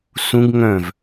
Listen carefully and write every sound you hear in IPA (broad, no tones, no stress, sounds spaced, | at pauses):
s ũ ɡ ŋ œ̃ v